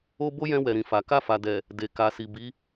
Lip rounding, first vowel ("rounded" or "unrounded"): rounded